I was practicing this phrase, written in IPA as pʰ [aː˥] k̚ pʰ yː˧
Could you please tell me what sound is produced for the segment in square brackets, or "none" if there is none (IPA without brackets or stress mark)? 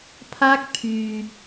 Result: aː˥